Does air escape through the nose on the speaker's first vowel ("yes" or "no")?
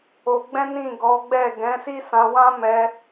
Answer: no